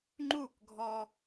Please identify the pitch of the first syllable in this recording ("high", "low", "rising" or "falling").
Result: falling